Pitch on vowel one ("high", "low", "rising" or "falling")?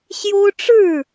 high